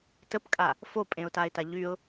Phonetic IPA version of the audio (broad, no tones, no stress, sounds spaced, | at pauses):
t ə p kʼ a | f o pʼ ẽ ʊ̯ t a ɪ̯ t a ʎ y ʊ̯